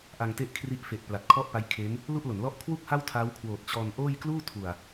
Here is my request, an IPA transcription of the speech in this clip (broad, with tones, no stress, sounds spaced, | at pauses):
ʔ a˧ ŋ t e˥˩ ʔ kʰ r i˦˥ ʔ f e˨˩ ʔ p l a˨˩ t̚ kʰ ɔ˥˩ ʔ p a˦˥ j kʰ e˦˥ n | l u˥˩ ʔ l o˩˦ n l ɔ˥˩ ʔ kʰ w u˥˩ k̚ h a˥˩ w tʰ a˦˥ w kʰ w oː˨˩ t̚ t͡ɕ ɔː˧ n ʔ oː˥˩ j k l uː˥˩ tʰ u˨˩ a̯